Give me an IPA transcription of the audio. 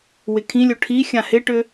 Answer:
w ɪ kʰ ĩ lʲ o ʈʰ i xʲ ã h ɪ ʈ ʏ

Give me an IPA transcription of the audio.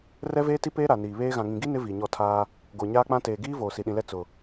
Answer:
r ɛ˦ v eː˦ t i˦ p eː˦ ɾ a˨ n iː˨ β eː˦ ɣ ã˨ ŋ ĩ˨ ɡ i˦ n ɪ˦ v iː˨ ɲ ɔ˦˨ tʰ aː˦ | ɡ o˨ ɲ aː˦ k͡p ã˦ t eː˨ ɡ iː˦ v oː˨ s i˨ ɗ ĩ˨ l ɛ˦ t͡s ʊ˨

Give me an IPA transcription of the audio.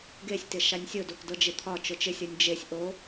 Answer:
ɡ e sʲ t ɪ ʃ a nʲ sʲ ʊ d o k d ɤ d͡ʒ ɪ t̪ʰ ɒ t͡ʃ ʊ t͡ʃ ɪ sʲ ɤ nʲ d͡ʒ e sʲ ʔ o

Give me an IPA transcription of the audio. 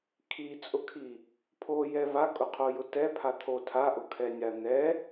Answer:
kʰ i t͡sʼ ʊ kʰ i | pʰ o j ɛ v a kʼ ʊ qʰ o j ʊ t ɛ pʰ a t̪ʰ o tʰ a ʔ ʊ kʰ ɛ nʲ a n̪ ɛ

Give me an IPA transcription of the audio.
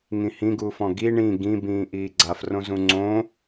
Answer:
ŋ ĩ h ĩ ɡ uː f ɔ̃ ɡ i ɳ ĩ ɡ ĩ b ĩː ʔ iː ɡ͡ǀ a f r õ z ũ ŋ͡ǀ õ

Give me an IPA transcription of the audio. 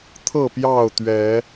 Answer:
t̪ʰ ɤ˥˨ p j ɑ˥˨ ʊ̯ t̪ ɥ ɛ˨˦

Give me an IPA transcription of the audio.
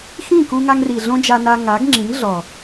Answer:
x ĩ˦˨ k u˧ ŋ a˧ ŋ r i˨ ɮ õ˦ d͡ʒ a˧ n a˧ ŋ a˨˦ ɡ ŋ͡ǁ ĩ˨˦ ŋ ɮ ɔ˨

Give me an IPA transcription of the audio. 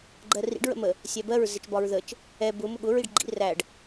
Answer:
ɡ͡ǃ ɜ r ḭ ɖ ɹ ə̰ m ə | sʲ æ b ɜ ɹ z ɪ t͡ʃ b ɒ ɹ ð ə t͡ʃ | ɛ b ʊ m ʊ ɠ ʊ ɹ i ɖ ɡ͡ǃ ḭ r æ ɖ

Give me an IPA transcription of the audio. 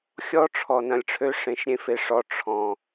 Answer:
xʲ ɔ˦ ʈ͡ʂʰ ɔ˨ n ɐ̃˨ lʲ ʈ͡ʂʰ ø˧ ʂ ẽ˨ ʃ ɾʲ ẽ˦ f e˧ ʂ ɔ˧ ʈ͡ʂʰ ɔ̃˨

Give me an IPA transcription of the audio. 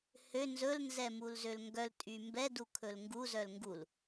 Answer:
h ø n z ɵ l n z ɛ m u l z ø l ŋ ɡ œ l tʼ y m b ɛ d u kʰ ɵ l ŋ ɡ u z œ l ŋ ɡ u l

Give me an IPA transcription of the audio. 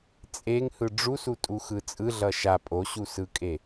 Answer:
t͡sʼ e ŋ h ɯ ɖ͡ʐ u s u tʼ u x ɯ t͡sʼ ɯ ɮ ʌ ʃ a pʼ o ɕ u s ɯ kʼ e

